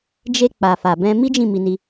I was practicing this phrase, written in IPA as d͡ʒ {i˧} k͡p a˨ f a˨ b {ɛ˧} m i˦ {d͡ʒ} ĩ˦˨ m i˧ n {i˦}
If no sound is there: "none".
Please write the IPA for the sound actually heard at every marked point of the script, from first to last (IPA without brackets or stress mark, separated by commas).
e˧, ɛ̃˧, d͡ʒ, i˧